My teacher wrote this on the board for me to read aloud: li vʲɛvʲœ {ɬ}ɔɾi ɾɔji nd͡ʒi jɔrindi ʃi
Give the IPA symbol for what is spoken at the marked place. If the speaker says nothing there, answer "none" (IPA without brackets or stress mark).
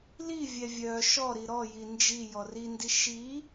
ʃ